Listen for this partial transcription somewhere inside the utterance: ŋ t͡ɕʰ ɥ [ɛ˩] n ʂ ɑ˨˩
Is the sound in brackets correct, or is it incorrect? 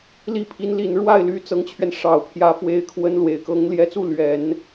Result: incorrect